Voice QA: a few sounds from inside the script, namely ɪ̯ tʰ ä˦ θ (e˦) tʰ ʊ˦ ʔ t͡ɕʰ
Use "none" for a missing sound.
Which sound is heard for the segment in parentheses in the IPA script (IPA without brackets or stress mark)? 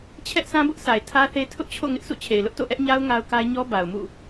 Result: e˦